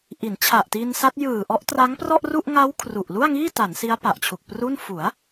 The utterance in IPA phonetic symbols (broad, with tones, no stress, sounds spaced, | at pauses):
ʔ i˩˦ n t͡ɕʰ a˨˩ ʔ t i˧ n s a˦˥ t̚ j ɯː˨˩ ʔ ɔ˦˥ ʔ t r a˦˥ ŋ p r ɔ˥˩ ʔ r u˥˩ ʔ ŋ a˦˥ w kʰ r u˨˩ ʔ l u˥˩ a̯ ŋ iː˥˩ t a˩˦ n s i˦˥ a̯ p a˨˩ ʔ t͡ɕʰ u˨˩ k̚ p r u˥˩ n f u˩˦ a̯